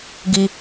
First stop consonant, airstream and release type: plain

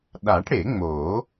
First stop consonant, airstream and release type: implosive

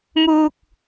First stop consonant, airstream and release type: plain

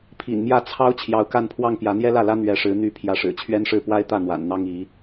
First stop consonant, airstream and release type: aspirated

